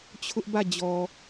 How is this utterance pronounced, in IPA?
t͡ɕʰ ʊ˦ ʔ b ä˦˨ d͡ʑ ɔ˨

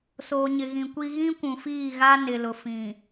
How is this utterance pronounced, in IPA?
s oː˨ ɲ ɪ˨ ɣ ĩ˨ kʷ i˦ ɣ ĩ˦ kʷ ũ˨ f iː˦˨ ɣ a˦ n ɪ˨ l ʊ˨ f ĩ˨

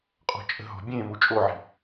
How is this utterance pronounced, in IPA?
qʼ ɔ̤ t͡ʃʼ ə̤ ɦ ɔ̤ bʲ ẽ m u t͡ʃʼ o ʕ i̤

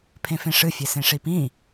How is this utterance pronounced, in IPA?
pʰ ẽ f ẽ ʂ ɨ fʲ e s ẽ ʂ i p ĩ

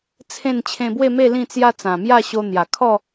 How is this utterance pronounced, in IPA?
t͡sʰ ẽ˥˧ n t͡ɕʰ ẽ˧ b w e˥˧ m e˥˧ l ĩ˥˧ t͡s j a˦ t͡s ã˨˩ m j a˥˧ ɕ o˧ n̪ j a˨˩ kʰ ɔ˥˧

